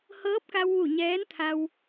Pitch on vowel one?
rising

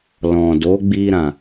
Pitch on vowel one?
low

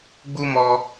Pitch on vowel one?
high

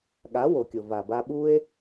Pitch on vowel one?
rising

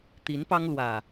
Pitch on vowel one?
rising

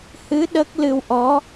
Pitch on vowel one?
rising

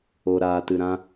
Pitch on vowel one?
low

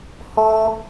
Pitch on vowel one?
high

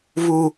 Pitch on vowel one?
low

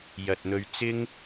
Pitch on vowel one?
low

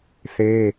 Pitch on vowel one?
high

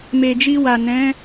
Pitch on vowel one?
low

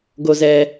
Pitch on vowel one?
low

